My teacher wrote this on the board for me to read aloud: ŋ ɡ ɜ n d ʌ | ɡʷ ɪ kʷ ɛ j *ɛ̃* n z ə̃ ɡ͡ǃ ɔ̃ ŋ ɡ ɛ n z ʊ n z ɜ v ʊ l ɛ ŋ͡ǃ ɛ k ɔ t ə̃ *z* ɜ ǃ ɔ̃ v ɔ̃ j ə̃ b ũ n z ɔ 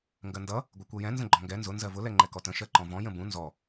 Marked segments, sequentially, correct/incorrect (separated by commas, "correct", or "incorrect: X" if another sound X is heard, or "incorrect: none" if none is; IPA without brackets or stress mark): correct, incorrect: ʃ